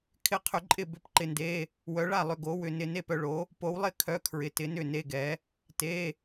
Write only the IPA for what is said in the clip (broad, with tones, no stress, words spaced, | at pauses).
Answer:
kʰɪ˥˨qʰʏ˨˥ǃʼɪ˥˨ bʏ˨˥p ǃɪ˧nde˧˥˧ | wœ˨˥ɭa˥˨lˠʏ˧ ɡo˨˥wʏ˧ nɪ˥˨ ne˥˨pœ˧ɭo˨˥ | po˨˥wlˠɪ˥˨ kʰœ˧˥˧kʰɹɪ˨˥tɪ˨˥nʏ˥˨ ne˧˥˧ɡɛ˨˥ | te˧˥˧